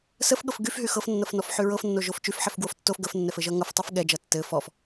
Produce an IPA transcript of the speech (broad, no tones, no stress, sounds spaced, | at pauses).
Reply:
s ə f ɠ ɤ f ɡ y f ɦ y x ɤ f nː ʌ f n ɔ f ħ y ɹ ɤ f nː o ʒ o f t͡ʃ y f ħ ɛ f ɡ w o f tː o f ɡ ə f nː ɛ f ɘ ʒ ʌ ŋ ʌ f tˤ ɤ f ɠ ɛ d͡ʒ ʌ tː ɘ f ɔ f